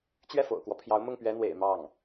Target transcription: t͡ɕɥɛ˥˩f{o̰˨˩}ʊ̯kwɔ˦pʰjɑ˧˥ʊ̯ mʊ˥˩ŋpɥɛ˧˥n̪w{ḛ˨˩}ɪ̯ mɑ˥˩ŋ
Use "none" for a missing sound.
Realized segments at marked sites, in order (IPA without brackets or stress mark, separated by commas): o̰˨˩, ḛ˨˩